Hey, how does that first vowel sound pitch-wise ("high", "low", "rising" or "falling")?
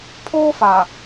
high